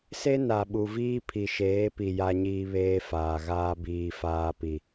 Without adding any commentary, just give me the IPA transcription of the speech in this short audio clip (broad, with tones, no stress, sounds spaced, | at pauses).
s e˦ n a˨ ɓ u˨ v iː˦ pʰ i˨ ʃ eː˨˦ p i˨ j a˦ ɲ iː˦ β eː˦ f aː˨ ɣ aː˦ b iː˦ f aː˦ p i˨